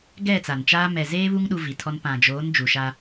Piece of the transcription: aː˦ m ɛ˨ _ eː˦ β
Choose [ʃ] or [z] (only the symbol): z